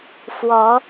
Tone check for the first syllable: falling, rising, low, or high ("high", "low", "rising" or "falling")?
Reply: rising